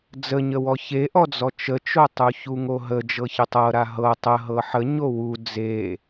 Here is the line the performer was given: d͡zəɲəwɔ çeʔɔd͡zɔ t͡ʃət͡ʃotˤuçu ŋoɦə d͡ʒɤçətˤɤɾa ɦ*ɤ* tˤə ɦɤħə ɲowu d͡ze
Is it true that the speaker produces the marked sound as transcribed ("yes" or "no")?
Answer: yes